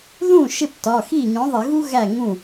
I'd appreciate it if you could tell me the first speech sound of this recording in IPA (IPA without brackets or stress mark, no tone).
ð